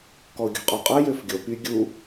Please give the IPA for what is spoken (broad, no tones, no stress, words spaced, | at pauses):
kɔʊ̯ɡʲɔ̤qʼɔqʼə˞ jøfɡʲo py ɡʲu